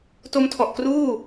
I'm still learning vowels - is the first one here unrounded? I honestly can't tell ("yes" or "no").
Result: no